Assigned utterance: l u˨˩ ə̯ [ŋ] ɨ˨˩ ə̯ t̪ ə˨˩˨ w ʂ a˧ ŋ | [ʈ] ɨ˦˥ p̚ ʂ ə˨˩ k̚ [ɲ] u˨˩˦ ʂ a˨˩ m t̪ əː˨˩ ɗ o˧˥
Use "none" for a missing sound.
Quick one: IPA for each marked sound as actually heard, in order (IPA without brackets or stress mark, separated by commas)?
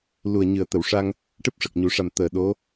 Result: ɲ, ʈ, ɲ